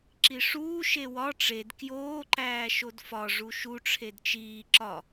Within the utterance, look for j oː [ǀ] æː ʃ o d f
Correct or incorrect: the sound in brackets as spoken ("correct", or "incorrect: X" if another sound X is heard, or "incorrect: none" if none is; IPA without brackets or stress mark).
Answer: incorrect: ǃ